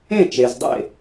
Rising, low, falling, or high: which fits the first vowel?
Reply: falling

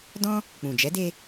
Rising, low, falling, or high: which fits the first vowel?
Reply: high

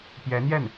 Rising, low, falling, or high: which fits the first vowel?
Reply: rising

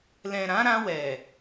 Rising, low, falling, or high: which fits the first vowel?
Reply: low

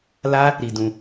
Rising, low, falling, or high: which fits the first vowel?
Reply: high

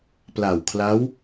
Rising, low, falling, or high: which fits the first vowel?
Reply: low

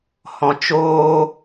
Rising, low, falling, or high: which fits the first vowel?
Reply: low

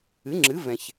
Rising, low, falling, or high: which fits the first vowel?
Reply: rising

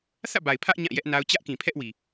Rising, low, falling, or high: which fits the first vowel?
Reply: falling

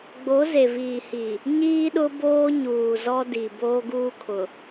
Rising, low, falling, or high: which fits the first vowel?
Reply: rising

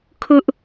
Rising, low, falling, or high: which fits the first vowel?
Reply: high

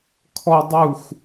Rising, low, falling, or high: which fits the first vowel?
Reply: high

